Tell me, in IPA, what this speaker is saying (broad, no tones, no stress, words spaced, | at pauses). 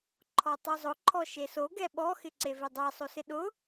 ǃʰɔtˤuzˤʊ ǃʰɔʃeso ɡɛɓɔ xɪǀevedˤɛ sˤosɪɗʊ